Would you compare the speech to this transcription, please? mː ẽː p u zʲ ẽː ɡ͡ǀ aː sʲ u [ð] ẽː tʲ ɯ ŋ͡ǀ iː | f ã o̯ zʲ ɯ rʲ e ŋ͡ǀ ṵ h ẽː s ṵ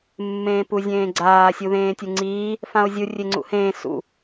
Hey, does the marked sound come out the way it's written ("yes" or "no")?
yes